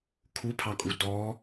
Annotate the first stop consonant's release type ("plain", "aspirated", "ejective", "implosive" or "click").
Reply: aspirated